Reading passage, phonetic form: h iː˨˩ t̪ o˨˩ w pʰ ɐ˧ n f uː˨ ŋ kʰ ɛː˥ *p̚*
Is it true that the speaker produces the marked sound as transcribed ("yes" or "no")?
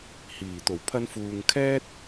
no